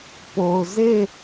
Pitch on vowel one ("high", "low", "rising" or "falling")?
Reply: low